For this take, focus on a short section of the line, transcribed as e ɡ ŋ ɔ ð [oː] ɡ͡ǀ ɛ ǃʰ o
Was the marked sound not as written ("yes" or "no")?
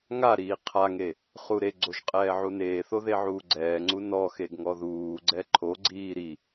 yes